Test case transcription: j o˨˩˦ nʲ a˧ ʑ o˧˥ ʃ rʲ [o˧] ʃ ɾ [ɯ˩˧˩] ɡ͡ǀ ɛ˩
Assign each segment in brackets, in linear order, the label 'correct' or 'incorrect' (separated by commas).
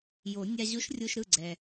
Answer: correct, correct